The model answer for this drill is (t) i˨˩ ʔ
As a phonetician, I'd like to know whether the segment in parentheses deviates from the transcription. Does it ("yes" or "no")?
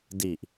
yes